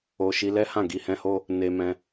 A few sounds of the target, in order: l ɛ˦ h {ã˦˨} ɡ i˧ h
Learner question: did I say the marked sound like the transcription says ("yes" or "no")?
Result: yes